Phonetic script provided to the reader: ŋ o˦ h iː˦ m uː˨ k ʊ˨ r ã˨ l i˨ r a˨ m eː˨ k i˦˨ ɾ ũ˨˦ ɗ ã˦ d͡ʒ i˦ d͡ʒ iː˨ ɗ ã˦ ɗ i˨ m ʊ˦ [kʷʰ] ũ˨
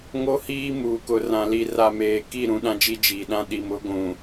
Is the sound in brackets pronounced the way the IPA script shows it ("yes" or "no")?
no